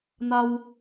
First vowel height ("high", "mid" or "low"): low